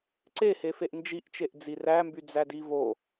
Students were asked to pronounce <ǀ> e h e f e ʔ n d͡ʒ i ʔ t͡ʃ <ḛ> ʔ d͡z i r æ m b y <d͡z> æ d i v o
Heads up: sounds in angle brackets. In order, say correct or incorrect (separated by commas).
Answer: correct, incorrect, correct